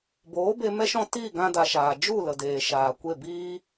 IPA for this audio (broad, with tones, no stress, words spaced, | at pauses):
boː˨˦be˧ mɛ˦ʃɔ̃˦ tiː˦˨ɡã˧da˨ ʃaː˨ d͡ʒu˦˨lə˨ deː˨ʃaː˨ kʷe˦˨biː˦